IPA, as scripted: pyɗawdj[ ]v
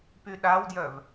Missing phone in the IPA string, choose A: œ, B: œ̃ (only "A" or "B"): A